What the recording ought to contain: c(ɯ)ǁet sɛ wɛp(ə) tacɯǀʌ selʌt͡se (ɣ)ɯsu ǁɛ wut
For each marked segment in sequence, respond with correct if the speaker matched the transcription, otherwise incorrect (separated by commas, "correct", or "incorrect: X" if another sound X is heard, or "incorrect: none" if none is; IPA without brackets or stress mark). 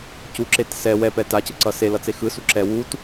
incorrect: u, incorrect: ɛ, incorrect: x